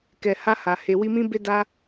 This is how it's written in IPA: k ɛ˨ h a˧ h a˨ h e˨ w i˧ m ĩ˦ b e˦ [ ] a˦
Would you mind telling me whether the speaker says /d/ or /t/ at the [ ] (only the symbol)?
d